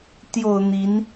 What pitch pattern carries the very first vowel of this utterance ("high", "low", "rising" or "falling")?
low